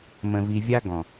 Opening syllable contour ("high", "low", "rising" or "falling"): low